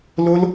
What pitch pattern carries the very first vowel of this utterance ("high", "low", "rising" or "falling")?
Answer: high